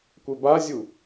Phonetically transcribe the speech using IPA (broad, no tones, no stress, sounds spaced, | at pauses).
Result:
kʷ e b a zʲ u